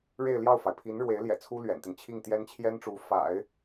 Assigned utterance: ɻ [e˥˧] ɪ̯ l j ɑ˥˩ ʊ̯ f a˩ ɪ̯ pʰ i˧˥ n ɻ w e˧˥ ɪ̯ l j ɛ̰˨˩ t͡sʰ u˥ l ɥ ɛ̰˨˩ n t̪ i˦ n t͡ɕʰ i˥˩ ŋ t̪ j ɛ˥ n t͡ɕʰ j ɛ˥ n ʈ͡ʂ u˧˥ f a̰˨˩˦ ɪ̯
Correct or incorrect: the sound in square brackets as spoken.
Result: correct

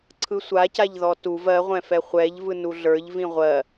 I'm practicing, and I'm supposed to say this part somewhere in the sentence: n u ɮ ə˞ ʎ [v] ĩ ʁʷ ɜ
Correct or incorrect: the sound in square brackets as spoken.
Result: correct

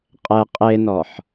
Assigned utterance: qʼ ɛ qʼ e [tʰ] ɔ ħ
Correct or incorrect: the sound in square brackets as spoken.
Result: incorrect: n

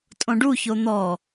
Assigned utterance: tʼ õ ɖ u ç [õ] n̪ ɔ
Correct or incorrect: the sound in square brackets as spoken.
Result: incorrect: o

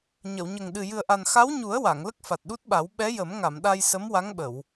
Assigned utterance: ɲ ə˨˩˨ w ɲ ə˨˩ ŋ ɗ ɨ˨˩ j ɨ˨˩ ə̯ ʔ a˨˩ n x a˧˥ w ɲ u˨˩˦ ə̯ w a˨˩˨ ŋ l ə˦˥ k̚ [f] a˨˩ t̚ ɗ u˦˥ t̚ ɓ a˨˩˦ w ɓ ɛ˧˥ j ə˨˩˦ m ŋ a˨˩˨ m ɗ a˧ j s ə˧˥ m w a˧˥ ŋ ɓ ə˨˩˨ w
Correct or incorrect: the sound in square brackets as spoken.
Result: correct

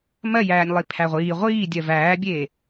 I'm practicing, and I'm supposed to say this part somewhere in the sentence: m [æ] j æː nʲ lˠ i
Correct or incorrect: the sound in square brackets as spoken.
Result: incorrect: ɜ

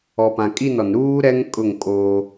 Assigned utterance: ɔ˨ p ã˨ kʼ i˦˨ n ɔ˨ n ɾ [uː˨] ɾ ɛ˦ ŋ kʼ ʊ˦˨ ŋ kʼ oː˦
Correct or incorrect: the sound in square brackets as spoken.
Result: incorrect: uː˦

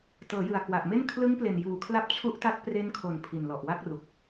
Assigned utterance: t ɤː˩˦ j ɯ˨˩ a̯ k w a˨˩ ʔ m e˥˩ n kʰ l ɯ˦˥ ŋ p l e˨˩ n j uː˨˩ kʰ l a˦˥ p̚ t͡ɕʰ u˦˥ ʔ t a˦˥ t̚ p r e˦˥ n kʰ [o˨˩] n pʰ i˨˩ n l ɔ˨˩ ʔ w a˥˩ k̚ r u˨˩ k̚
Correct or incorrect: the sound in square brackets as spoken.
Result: correct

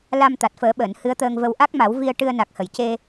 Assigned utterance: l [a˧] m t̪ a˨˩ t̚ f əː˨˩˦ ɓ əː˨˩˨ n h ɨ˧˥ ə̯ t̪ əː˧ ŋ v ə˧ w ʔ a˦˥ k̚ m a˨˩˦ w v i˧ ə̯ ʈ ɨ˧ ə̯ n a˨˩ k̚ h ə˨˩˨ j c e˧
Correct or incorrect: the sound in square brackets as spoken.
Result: correct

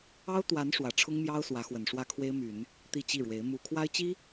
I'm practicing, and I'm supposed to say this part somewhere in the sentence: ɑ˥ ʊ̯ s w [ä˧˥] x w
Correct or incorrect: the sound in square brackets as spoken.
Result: correct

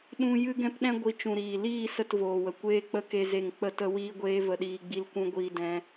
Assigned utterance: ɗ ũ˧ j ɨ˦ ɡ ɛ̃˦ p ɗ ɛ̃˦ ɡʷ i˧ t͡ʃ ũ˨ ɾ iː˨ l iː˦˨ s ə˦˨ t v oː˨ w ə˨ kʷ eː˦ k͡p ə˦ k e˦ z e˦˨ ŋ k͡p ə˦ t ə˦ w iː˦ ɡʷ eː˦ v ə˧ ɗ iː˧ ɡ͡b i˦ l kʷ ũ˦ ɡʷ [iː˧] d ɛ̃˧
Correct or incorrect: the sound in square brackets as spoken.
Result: correct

